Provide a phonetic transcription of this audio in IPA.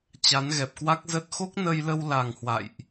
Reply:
t͡ɕ a˨˦ n ɣ ɛ˨˩ p̚ k w a˦˥ k̚ z ə˦˥ t̚ x o˦˥ k̚ n ə˧ j l ə˧ w l a˨˩ ŋ h w a̰˧˨ j ʔ

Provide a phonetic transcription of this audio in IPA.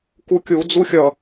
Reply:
k u kʲ u d͡z u xʲ ʌ

